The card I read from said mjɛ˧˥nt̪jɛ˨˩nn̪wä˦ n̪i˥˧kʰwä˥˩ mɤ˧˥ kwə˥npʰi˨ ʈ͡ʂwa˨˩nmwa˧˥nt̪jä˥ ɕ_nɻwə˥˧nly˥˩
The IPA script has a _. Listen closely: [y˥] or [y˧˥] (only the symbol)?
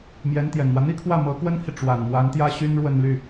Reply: y˥